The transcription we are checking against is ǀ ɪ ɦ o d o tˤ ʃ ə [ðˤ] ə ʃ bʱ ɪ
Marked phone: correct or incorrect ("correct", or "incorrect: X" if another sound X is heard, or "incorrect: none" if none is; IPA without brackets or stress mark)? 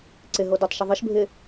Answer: correct